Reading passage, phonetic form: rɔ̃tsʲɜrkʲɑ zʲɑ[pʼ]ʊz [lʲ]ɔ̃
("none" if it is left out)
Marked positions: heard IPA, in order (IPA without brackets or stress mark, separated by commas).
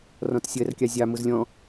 m, lʲ